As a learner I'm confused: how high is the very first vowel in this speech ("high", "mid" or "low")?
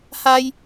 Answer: low